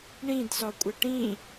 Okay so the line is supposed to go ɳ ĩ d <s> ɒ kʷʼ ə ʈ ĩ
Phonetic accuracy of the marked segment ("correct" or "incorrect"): correct